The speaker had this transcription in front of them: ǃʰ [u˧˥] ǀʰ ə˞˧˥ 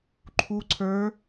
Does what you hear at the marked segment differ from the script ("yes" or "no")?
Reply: no